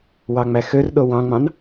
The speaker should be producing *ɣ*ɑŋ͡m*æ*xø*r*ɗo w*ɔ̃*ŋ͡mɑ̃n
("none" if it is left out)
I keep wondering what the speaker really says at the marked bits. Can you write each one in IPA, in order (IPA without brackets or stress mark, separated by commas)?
w, æ, r, ɑ̃